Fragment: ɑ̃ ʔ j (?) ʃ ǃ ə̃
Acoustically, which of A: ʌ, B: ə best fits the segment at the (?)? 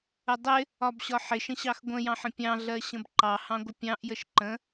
B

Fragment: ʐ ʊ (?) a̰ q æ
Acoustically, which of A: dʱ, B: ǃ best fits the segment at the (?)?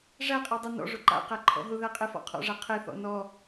B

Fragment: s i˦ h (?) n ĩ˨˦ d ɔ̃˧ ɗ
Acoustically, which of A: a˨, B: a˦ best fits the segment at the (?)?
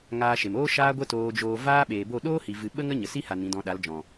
A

